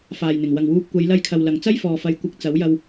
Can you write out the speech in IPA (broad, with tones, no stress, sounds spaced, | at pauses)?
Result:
f aː˨ j n̪ ɪ˨˩ ŋ w ɐ˨ ŋ w uː˧ p̚ kʷ ɐ˨˧ j l ɐ˧ j kʰ ɐ˨ w l ɐ˨ ŋ t͡s ɐ˥ j f ɔː˨ f ɐ˨˧ j kʷ ɪ˨ k̚ t͡s ɐ˨˥ w j ɐ˧ w